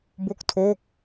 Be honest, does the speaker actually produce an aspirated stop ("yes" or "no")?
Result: yes